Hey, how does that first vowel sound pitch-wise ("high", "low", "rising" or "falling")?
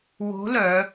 rising